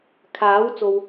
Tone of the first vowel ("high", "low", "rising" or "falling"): rising